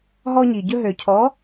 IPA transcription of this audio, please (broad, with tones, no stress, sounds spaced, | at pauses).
ɦ ɔ˦ ɲ i˩ ɟ ɵ˦ ɦ ø˩ cʰ ɔ˨˥